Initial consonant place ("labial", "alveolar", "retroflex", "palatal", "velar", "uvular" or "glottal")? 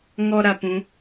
velar